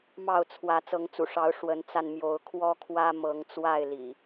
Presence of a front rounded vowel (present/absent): absent